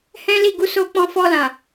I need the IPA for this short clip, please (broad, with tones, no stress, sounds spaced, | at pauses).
h ɛ̃˦ l i˦˨ ɡ u˧ s o˧ k͡p ɔ̃˧ f ɔ˧ l ã˨